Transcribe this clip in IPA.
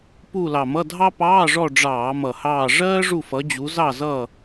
p u˦˨ l ɑ˨˩ m ʌ˧˥˧ dʱ ɑ˥ p ɑː˧˥˧ ʐ ɔ˦˨ ɖ͡ʐ ɑː˧˩˧ m ʌ˨˩ h ɑː˦˨ ʐ ɜː˥ ʐ u˦˨ f ʌ˨˦ d͡ʑ u˨˦ z ɑ˦˨ z ʌ˦˨

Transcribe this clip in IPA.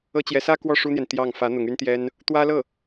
ɤ˥ t͡ɕ j ɛ˧˥ s ä˥ k w ɔ˥˩ ʂ u˥ n̪ j ɛ˨ n t̪ j ɑ˥˩ ŋ f ä˧˥ n̪ ʊ˧˥ ŋ y˥ n t̪ j ɛ˥ n | t̪ w ä˥ l ɤ˥˩

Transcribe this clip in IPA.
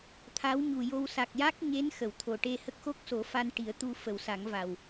t̪ʰ a˧˥ w ɲ u˨˩ j o˧ w s a˨˩ k̚ j a˦˥ k̚ ɲ e˧˥ n x ə˨˩˨ w t̪ʰ o˨˩ ʈ e˧ h ə˦˥ k̚ x o˦˥ k̚ s o˨˩˦ f a˧ n ʈ i˨˩˦ ə̯ t̪ u˧ f ə˨˩˨ w s a˨˩˦ ŋ v a˨˩ w

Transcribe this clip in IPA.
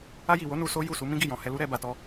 a˧ j i˨ w o˨˦ n u˧ s o˦ j u˦˨ s u˨˦ m ĩ˦ ɡ i˦˨ j ɔ̃˨ h ɛ˧ l u˦ ɾ ɛ˧ b a˨ t ɔ˧

